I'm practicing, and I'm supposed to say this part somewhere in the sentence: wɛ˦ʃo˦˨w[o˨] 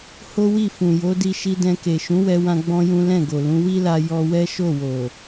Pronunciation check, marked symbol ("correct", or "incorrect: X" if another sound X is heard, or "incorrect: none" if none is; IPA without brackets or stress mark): correct